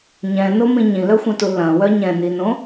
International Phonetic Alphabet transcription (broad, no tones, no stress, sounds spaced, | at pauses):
ɲ ɛ̃ n o m ĩ ɲ ĩ l œ xʷ ɛ̃ t u l ɐ̃ w œ ɲ ɛ̃ n i n õ